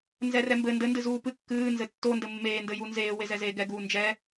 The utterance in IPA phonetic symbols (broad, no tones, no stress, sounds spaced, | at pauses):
n z ɛ r ɛ m b ɘ n d ɘ n d ɨ z uː p ɨ kː ɨː n z ɘ tː o n d ɘ mː eː n d ɘ j u n z eː w e z ɛ z eː ɡ ɛ ɡ uː n d͡ʒ ɛ